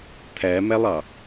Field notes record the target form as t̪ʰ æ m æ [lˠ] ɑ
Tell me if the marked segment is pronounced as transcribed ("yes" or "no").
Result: yes